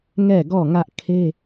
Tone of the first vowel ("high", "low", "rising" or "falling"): falling